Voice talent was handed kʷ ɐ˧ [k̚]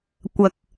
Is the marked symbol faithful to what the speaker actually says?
yes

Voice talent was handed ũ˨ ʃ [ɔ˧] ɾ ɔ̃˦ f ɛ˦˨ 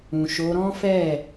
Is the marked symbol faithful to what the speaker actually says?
no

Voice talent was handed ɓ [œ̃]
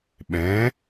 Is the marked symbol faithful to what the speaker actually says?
no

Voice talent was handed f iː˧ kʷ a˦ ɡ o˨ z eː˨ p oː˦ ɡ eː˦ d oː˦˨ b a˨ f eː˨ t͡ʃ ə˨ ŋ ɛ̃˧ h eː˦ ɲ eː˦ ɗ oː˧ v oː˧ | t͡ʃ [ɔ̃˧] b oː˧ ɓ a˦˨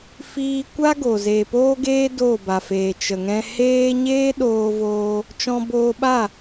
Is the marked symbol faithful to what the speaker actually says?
yes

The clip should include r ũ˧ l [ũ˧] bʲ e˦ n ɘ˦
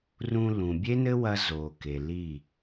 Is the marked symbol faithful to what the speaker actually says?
no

